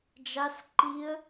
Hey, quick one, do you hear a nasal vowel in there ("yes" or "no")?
no